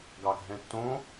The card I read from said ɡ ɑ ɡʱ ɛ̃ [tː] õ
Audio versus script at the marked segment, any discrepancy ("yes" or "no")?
no